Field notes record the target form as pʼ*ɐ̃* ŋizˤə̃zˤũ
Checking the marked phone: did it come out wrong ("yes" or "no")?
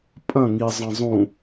no